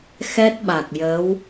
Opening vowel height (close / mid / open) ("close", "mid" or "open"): mid